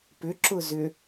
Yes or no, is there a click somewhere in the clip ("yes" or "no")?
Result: yes